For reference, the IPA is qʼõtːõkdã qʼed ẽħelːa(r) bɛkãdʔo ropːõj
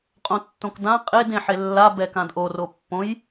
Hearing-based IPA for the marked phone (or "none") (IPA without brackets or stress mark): none